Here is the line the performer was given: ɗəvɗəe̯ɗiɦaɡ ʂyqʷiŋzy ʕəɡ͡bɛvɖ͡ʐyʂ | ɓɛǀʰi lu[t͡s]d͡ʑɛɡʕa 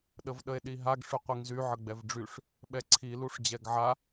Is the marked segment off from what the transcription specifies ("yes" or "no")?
yes